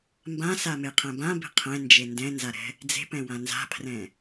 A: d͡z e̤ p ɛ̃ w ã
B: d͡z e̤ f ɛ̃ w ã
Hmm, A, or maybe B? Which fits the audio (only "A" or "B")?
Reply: A